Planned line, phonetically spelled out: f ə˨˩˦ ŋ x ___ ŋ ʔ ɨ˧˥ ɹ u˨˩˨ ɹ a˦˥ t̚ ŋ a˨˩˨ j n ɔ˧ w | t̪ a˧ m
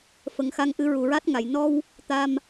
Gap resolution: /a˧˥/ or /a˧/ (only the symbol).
a˧